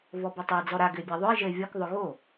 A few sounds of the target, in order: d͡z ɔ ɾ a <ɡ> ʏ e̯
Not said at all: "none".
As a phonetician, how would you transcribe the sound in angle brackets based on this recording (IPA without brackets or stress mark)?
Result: ɡ